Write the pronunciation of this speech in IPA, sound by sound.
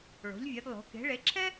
ɭo̤˩˧ʎvʲɛ˩˧dlˠo̤˩˧ ke̤˩˧ɭe˩˧ǁʰɛ˥

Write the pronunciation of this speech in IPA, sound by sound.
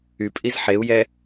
ypʼiz ħeu̯jɛ

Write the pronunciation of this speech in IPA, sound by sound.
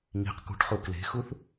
ŋi̤q kṳʈχu kle̤xuθ

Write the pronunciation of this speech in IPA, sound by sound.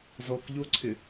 zɔkʎoǀʰɪ

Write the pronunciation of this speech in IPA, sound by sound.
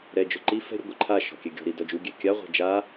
ɾɛd͡ʒʊ ǃi fɛ̤ɾʲʊ ɡʷɪǃʰaʃɔ̤ kʲɛɡʲɔ̤ɾi dɔd͡ʒuɡʲɛ kʲaʁʷɛ̤ d͡ʒa

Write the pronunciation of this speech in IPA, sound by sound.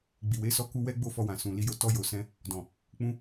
ɡ͡bi˨we˨˦ sɔ˧ ku˧wɛ˦ ɡ͡bo˦˨fɔ˧wã˨ sũ˨ li˨jo˨ tɔ˧jo˨sɛ̃˧ | dɔ̃˨ | k͡pũ˧

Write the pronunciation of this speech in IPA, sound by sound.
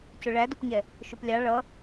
cʊɭædʊpɲɛ | ʃʊplʲɑ ɭʌ

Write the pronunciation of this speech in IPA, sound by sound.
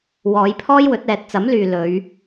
wɔː˨˧jpʰɔː˥jwɵ˨˥t̚ ɛː˨t̚t͡sɐ˨˥mlyː˨ lɵ˨˧ɥ

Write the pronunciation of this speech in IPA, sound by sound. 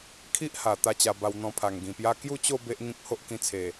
kʰi˦ʔha˨˩ t̪a˥˧t͡ɕa˧ba˧w n̪ɔ̃˧pʰa˨˩ŋɡĩ˨˩pja˦ kju˥˧t͡ɕo˥˧ be˦ʔ ŋĩ˦k̚ ho˦ʔkĩ˧t͡sʰe˨˩

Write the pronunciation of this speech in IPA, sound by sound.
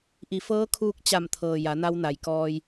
ʔi˩˧fɤː˧˥kʰuː˧k̚ t͡ɕa˧˩mt̪ʰɤː˩ ja˩˧na˧wna˩j kɔː˧j

